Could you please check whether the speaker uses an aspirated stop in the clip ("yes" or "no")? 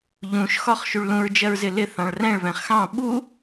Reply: no